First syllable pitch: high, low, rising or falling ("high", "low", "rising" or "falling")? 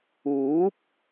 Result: rising